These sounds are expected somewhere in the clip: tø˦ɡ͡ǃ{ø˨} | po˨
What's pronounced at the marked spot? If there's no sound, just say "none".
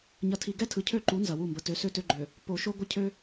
ø˨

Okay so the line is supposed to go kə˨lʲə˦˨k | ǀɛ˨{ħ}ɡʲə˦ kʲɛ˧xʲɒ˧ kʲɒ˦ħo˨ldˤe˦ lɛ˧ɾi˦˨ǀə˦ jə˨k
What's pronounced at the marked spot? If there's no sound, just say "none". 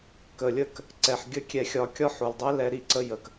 ħ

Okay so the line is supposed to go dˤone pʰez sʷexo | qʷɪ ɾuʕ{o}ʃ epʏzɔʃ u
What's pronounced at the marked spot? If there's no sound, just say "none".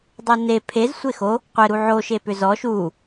o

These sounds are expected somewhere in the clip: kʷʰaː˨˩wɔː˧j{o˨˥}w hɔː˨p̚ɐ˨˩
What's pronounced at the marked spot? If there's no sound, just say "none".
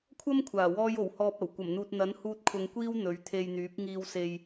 o˨˩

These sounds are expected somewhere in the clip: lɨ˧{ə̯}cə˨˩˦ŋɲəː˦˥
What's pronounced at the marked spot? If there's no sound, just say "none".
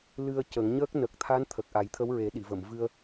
ə̯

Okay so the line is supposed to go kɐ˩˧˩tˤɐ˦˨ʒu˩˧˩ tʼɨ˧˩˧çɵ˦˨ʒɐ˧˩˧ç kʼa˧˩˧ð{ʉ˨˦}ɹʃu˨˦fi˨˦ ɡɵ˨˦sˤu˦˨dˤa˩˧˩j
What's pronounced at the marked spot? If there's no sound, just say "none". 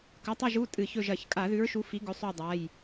ʉ˨˦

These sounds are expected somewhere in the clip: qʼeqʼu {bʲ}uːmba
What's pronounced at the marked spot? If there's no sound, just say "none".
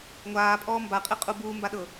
b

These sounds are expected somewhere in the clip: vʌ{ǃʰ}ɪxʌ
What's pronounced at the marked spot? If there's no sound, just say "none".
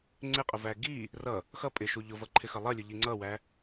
ǃʰ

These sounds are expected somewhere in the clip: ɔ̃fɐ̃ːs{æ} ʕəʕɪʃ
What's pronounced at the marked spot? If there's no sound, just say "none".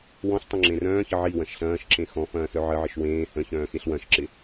œ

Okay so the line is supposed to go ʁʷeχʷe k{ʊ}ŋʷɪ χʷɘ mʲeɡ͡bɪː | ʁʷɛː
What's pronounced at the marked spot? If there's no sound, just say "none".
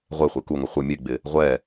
u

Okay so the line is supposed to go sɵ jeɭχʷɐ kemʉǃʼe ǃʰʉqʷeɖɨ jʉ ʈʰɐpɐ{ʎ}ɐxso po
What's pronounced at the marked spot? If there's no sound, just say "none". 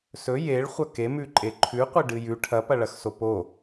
ɭ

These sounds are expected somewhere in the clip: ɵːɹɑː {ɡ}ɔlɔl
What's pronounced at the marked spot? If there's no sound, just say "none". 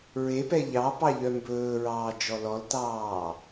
d͡ʒ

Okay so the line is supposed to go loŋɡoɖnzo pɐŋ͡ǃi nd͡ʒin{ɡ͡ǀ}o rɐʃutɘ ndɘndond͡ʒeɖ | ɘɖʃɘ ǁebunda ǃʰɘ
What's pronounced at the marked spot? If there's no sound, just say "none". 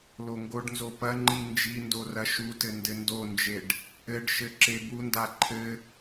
d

